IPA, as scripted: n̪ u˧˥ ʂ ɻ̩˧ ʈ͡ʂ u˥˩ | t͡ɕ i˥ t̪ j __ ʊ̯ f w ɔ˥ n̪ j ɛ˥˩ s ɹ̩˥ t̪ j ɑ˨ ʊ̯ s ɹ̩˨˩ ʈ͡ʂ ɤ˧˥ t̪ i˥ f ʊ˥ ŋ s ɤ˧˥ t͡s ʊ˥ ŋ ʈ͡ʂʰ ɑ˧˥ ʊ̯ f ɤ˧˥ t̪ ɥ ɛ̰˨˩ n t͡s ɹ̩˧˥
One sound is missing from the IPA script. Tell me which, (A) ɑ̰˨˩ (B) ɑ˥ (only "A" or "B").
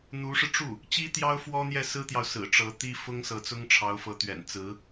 B